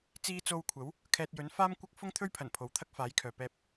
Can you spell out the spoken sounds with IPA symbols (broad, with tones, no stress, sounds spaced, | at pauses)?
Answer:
t͡s iː˧ t͡s o˧ w kʷʰ ɐ˨˥ w | kʰ ɛː˧ t̚ j ɵ˨˥ n f aː˥ m kʷ ɐ˥ k̚ f ʊ˥ ŋ t̪ʰ ɵ˥ ɥ pʰ ɐ˨˩ n pʰ o˨˧ w t̪ʰ ɐ˥ k̚ f aː˨˥ j kʰ œː˨ p ɛː˧ p̚